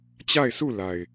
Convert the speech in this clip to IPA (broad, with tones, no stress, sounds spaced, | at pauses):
t͡ɕ a˦˨ ɪ̯ s u˦˨ l a˨ ɪ̯